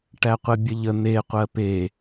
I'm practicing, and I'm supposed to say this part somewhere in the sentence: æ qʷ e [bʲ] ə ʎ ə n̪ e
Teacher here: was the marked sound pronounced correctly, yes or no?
yes